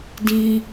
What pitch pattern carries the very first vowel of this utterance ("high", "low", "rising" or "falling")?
low